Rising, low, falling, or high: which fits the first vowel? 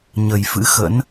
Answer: low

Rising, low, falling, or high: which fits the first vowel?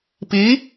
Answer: rising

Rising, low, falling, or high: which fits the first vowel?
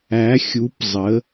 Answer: rising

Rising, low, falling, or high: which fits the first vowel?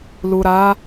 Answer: low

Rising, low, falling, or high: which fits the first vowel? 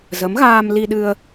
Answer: rising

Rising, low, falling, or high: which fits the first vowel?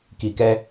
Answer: low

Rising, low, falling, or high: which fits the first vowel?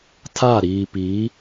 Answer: falling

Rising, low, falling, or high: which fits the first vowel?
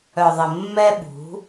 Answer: low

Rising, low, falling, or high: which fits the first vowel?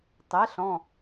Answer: rising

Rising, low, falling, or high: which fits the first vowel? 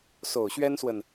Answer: low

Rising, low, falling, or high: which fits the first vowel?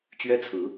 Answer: high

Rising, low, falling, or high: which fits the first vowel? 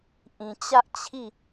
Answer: low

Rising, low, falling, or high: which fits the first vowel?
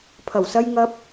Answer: low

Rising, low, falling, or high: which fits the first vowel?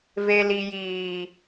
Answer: low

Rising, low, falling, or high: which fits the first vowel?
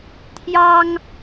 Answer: high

